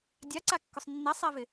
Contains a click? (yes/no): yes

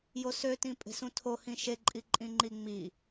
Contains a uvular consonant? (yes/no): no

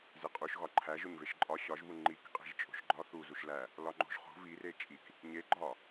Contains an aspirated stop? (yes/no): yes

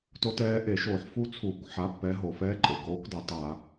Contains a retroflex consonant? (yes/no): no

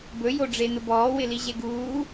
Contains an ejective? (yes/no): no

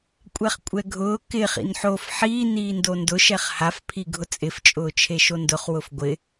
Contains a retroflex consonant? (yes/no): no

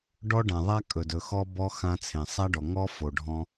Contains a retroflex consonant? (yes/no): yes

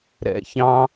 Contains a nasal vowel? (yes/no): yes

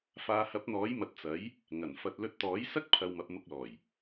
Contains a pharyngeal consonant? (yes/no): no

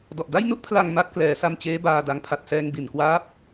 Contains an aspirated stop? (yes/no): yes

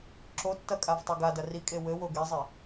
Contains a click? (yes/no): yes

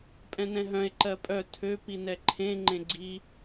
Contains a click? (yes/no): yes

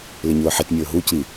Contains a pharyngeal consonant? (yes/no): yes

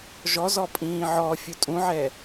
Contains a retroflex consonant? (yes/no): no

